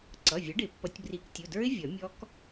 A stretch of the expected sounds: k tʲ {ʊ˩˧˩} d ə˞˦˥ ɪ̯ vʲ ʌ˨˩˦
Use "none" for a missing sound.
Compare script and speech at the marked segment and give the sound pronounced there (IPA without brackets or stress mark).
ʊ˩˧˩